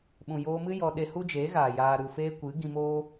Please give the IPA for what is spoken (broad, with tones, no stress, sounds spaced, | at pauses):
ɓ ũ˨ j oː˧ m ɨ˦ j ɔ˧ ɗ e˧ h u˦ d͡ʒ eː˨˦ ɣ aː˨ j aː˨ ɾ u˨ f eː˧ kʷ ɨ˨˦ ɡ ĩ˧ m oː˦